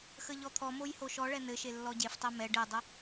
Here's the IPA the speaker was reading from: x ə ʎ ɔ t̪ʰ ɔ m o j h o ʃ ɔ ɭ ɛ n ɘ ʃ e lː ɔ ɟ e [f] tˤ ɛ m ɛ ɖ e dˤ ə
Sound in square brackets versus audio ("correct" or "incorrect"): correct